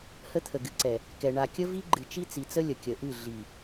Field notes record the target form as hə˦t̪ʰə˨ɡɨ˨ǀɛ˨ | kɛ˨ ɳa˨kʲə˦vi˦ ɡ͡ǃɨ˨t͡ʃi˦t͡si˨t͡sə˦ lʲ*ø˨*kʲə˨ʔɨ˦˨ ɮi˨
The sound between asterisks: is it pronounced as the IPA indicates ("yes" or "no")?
no